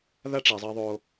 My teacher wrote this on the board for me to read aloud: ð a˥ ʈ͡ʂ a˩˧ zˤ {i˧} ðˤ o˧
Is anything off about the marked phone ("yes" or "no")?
no